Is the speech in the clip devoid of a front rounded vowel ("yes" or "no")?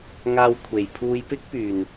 no